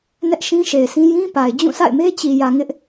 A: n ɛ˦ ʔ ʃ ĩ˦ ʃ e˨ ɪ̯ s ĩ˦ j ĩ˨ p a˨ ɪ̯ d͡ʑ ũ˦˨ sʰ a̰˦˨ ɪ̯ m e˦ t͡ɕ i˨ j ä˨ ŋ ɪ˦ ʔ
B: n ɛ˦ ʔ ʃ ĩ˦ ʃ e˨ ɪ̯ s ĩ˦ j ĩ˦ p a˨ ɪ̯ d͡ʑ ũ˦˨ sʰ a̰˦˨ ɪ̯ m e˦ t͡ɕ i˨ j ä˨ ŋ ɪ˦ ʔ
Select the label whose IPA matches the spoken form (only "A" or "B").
B